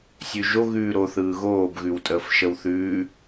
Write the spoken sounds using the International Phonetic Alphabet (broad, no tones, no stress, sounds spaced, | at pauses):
sʲ ʉ ʒ o ɣ ʉː ɾ o θ ɯː ɣ oː b ɣ ʉ w tʼ əː f ʃ ə w θ ʉː